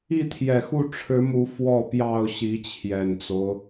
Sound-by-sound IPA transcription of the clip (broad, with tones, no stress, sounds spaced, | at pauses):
i˥˨ t̪ʰ j ɛ˨˩ x u˥˨ ʈ͡ʂʰ ɻ̩˨˦ m u˨˦ f w ɔ˥˨ p j ɑ˥˨ ʊ̯ ɕ i˨˦ t͡ɕʰ j ɛ˨˩ n t͡s o˦ ʊ̯